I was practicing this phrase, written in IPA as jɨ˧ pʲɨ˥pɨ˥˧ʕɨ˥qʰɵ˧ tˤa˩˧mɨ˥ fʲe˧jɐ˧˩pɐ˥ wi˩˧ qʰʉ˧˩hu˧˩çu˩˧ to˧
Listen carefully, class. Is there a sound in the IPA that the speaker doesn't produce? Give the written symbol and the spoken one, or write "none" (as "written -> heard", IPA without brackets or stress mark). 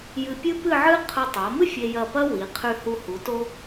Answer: ç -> h